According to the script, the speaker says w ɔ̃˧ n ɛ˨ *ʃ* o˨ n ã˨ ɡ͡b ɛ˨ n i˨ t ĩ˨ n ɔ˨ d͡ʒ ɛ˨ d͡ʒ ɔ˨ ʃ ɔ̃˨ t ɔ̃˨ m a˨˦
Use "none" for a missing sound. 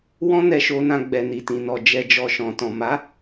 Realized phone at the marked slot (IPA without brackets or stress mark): ʃ